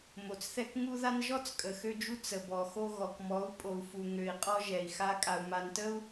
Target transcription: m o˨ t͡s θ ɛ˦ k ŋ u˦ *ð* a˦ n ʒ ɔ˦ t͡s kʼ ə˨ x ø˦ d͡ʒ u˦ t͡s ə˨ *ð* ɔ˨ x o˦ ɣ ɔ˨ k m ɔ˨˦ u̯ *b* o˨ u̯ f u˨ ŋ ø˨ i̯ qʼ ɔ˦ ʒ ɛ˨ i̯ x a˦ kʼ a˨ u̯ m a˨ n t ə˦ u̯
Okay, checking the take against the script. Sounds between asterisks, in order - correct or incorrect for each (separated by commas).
correct, incorrect, incorrect